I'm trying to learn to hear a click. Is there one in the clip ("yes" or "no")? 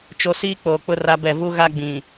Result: no